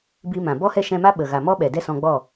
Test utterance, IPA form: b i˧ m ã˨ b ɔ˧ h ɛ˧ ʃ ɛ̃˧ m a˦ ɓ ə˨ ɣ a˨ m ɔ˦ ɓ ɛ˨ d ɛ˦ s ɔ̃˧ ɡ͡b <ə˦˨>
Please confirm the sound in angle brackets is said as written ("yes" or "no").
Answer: no